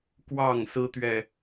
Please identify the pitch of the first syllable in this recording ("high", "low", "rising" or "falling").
falling